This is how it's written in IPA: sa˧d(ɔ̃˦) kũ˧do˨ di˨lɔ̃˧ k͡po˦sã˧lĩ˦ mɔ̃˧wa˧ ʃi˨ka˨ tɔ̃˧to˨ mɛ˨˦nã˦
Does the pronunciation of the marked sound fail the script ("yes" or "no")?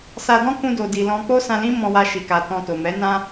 no